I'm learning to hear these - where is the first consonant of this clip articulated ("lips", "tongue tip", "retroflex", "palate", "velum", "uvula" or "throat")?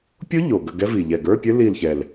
lips